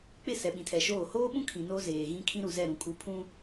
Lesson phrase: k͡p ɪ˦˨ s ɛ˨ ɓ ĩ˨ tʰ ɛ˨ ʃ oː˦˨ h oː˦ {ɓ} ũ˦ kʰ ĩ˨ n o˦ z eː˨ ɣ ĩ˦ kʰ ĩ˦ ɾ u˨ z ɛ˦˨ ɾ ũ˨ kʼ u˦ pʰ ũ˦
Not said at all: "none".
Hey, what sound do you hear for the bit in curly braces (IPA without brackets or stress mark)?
ɓ